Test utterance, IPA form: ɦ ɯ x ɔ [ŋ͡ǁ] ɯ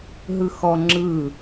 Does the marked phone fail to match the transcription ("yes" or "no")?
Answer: no